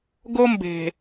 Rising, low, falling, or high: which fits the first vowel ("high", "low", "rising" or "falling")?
high